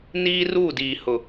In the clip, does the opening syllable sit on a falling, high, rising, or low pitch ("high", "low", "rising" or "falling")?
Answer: high